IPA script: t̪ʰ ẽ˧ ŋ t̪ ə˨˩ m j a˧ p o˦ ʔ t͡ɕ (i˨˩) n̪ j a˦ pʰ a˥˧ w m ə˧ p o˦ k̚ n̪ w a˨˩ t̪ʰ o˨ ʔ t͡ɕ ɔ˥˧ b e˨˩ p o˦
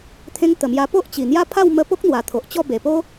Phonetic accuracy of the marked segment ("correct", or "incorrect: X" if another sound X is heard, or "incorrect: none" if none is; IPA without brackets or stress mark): correct